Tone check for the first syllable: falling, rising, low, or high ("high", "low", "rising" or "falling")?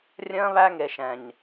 high